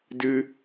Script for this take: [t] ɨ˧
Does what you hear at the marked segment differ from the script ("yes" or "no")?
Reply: yes